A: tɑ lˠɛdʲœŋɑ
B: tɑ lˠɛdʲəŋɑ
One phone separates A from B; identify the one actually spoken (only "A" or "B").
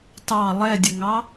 B